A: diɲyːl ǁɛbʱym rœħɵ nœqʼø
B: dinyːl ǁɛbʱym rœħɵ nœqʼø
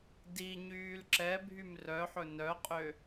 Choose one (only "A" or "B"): A